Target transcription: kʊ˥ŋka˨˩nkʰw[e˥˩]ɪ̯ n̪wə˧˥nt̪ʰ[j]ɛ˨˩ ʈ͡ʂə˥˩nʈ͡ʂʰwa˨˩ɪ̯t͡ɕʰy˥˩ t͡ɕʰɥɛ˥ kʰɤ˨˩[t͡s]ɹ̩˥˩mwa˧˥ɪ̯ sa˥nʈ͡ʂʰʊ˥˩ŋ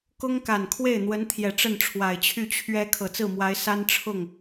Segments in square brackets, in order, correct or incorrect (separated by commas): correct, correct, correct